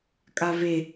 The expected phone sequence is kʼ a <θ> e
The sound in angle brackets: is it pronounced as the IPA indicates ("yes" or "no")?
no